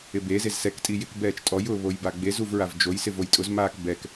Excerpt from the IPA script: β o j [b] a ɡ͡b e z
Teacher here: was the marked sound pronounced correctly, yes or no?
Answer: yes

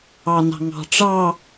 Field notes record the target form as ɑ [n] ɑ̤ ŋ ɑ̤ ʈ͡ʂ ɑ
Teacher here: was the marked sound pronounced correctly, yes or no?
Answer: yes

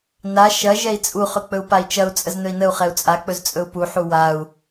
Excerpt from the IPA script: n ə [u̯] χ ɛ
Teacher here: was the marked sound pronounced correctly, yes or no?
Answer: yes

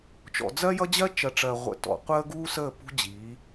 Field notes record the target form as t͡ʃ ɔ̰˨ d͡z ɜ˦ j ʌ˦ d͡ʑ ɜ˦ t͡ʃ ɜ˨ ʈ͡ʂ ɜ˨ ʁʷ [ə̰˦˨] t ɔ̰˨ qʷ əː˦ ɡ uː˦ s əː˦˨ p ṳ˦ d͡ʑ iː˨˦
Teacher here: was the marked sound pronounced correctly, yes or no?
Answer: no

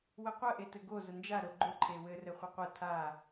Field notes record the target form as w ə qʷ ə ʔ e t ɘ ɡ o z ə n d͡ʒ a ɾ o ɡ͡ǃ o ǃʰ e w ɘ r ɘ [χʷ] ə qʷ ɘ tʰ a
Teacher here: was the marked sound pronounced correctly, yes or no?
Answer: yes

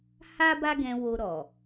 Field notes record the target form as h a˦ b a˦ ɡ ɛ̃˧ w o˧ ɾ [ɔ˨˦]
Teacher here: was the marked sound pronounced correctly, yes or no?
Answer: no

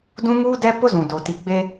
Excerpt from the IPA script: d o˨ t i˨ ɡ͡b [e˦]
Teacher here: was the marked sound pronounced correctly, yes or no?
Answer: yes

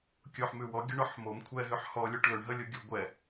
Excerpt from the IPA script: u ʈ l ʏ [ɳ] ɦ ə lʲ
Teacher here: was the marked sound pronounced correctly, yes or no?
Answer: yes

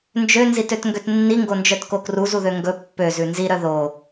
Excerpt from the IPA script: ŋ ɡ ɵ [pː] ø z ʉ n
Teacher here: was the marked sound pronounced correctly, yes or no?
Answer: yes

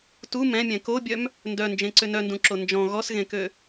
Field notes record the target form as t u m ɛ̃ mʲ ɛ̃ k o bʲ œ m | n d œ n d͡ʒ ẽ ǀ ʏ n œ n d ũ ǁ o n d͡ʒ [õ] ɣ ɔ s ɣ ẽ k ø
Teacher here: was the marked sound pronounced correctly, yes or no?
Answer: no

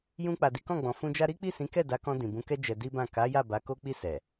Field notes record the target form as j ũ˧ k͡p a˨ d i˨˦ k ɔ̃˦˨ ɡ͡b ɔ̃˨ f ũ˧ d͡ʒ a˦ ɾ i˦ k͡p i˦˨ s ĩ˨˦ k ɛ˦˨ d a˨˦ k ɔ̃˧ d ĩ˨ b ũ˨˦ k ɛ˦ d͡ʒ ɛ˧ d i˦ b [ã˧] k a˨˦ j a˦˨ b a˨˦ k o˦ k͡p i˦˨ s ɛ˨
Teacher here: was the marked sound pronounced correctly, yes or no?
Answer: no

